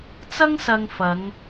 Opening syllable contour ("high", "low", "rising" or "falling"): high